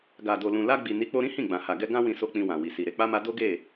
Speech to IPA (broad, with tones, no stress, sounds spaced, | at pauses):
ɡ a˨ d o˨ l ũ˨ l a˧ ɡ͡b i˨ n i˨˦ k͡p o˧ ɾ ĩ˦ h ĩ˦˨ ɡ͡b ã˨ h a˨ ɡ ɛ˧ ɡ ã˦ w ĩ˦ s o˦ k͡p ĩ˧ w ã˨ w i˨ s i˨ ɾ e˧ k͡p a˦ m a˦ d o˦ ɡ e˦˨